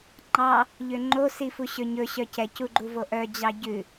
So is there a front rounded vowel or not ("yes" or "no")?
yes